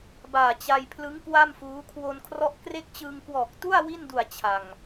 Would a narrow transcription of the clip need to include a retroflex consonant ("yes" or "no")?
no